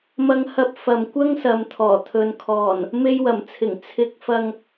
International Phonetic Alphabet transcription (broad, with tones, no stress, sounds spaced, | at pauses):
m ɐ˧ ŋ h ɐ˧ p̚ f ɐ˨ m kʷ ɐ˥ ŋ s ɐ˨ m t̪ʰ ɔː˨˩ t̪ʰ ɵ˨ n kʰ ɔː˨˩ n | m e˧ j w ɐ˨˩ m t͡sʰ ɪ˨˩ ŋ t͡sʰ ɪ˨ k̚ f ɐ˨ ŋ